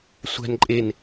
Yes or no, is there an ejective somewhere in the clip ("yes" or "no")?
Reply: yes